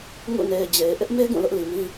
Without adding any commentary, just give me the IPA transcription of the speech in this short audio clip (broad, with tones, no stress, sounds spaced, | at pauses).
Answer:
ŋ ṵ˦˨ n e˨ ɪ̯ d͡ʑ e˨ ɪ̯ ʔ ɪ˦ ʔ m e˦ ɡ ũ˦˨ l ʊ˦ ʔ l i˨ m ĩ˦